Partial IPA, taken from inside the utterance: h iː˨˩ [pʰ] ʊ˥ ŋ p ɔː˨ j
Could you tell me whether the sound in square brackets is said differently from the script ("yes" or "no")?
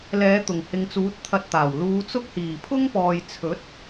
no